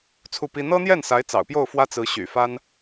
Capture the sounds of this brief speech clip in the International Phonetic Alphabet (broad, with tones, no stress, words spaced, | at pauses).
t͡sʰu˥˩pi˥ n̪ɤ˥n̪jɛ˥˩nsa˧˥ɪ̯ t͡sɑ̰˨˩ʊ̯pjo˥˩ʊ̯ fwä˥t͡sɹ̩˧˥ ɕy̰˨˩fa˥n